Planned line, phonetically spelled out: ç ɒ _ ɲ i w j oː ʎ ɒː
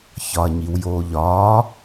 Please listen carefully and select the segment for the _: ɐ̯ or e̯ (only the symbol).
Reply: ɐ̯